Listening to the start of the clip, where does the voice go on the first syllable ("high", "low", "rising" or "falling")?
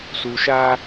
low